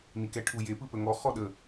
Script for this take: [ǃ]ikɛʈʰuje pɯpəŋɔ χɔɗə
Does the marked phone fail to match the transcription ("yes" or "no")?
yes